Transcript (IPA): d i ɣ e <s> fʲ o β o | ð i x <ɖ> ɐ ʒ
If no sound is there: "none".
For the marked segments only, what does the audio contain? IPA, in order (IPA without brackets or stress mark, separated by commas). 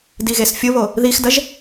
s, d